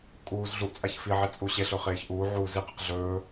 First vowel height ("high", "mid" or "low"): high